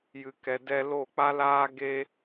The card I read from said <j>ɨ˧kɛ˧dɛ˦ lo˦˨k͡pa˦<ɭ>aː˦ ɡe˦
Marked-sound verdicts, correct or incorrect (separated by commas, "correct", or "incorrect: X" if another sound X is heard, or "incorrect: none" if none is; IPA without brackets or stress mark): correct, incorrect: l